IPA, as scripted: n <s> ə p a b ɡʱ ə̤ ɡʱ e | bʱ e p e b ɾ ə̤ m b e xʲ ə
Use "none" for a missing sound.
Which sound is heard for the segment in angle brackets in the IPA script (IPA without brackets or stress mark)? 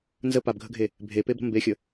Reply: z